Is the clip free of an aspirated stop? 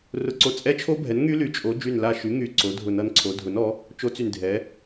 no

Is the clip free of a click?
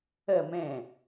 yes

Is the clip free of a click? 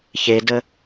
yes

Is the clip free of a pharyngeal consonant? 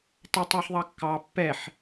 no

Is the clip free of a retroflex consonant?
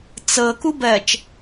yes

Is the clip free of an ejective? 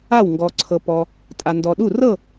no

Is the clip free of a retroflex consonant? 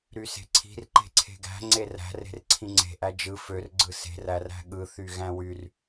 yes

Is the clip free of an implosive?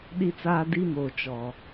no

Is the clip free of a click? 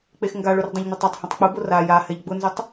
yes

